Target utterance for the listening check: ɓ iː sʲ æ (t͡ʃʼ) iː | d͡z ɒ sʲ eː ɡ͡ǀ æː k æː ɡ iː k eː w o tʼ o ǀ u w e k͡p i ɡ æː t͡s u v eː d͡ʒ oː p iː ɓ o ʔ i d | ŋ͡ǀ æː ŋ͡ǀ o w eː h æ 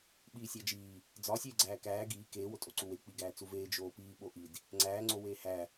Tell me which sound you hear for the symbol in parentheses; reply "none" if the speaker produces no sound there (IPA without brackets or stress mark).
d͡ʒ